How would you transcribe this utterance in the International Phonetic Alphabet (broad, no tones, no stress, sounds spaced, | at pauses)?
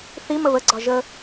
θ i m ə β ə ɡ͡ǀ ɒ ʒ ə